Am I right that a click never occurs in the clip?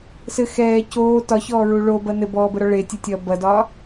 yes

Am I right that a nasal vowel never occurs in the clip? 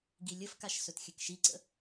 yes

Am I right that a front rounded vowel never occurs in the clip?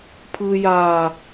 yes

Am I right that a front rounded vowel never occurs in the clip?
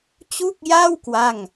yes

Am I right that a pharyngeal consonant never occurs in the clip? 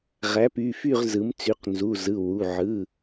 no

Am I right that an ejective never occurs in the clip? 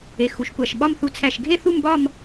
yes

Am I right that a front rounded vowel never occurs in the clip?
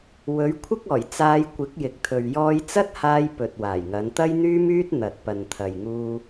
no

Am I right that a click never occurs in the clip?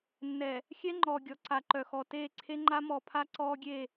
no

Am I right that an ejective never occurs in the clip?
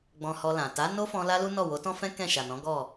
yes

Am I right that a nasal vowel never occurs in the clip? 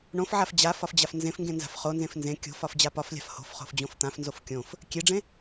no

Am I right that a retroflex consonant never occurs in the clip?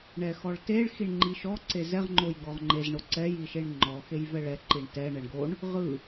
no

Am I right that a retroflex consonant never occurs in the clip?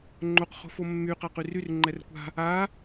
yes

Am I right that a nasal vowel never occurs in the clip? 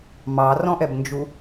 no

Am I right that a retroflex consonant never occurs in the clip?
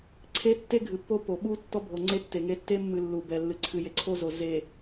yes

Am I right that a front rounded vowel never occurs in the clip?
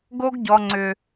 no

